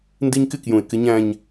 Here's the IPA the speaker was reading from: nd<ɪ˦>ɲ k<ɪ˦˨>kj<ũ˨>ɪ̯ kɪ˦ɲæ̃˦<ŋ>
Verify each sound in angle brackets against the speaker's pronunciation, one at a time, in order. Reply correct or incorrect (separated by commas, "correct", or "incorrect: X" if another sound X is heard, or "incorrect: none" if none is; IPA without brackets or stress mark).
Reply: incorrect: i˦, correct, correct, incorrect: ɲ